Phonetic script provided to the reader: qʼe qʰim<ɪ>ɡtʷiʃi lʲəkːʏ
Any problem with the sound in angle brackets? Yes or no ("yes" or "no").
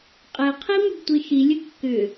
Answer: yes